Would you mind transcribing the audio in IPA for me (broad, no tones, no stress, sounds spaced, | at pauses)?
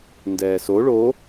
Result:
n d ɛː s o ɭ o